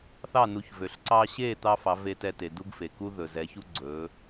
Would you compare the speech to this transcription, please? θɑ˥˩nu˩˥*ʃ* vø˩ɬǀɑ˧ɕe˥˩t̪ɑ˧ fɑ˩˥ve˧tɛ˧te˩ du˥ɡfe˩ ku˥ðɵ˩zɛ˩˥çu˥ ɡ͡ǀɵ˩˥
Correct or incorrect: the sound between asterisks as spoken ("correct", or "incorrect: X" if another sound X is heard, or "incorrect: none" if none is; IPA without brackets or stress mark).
incorrect: ç